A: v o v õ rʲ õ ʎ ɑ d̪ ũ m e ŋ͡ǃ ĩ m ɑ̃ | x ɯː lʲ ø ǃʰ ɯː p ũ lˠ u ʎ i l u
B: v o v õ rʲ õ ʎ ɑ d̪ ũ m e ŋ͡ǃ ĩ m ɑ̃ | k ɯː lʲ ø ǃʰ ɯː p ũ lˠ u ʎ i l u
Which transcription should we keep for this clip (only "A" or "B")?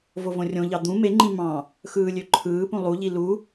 A